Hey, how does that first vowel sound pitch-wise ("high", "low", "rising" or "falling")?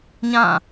falling